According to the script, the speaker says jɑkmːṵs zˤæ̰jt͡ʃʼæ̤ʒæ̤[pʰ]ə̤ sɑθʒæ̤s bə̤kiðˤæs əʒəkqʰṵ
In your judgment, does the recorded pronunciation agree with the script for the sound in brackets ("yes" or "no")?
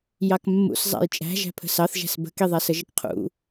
yes